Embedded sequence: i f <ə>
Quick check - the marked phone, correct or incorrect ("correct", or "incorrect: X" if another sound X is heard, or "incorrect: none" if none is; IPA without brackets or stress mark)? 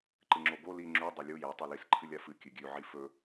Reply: incorrect: ɵ